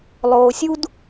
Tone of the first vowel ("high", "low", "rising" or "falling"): low